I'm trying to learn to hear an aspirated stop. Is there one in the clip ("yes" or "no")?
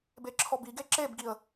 yes